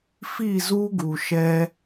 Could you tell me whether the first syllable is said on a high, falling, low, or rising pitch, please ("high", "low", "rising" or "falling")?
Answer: falling